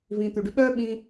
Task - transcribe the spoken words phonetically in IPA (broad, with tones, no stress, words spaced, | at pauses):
vĩː˧t̪y˧ɖy˦ ɓœː˦ ɓĩː˦